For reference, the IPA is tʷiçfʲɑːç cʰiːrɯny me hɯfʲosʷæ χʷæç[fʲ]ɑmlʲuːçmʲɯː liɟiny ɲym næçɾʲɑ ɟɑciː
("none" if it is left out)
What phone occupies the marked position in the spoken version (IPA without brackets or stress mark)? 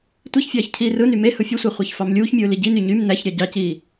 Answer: f